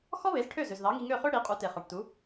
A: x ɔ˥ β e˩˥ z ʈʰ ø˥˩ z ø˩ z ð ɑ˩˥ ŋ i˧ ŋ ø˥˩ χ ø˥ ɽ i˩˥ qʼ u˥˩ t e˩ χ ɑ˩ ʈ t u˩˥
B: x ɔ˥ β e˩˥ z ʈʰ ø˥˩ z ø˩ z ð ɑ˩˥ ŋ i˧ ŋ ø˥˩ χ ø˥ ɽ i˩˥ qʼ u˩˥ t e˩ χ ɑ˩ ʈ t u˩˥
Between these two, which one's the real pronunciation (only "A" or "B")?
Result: B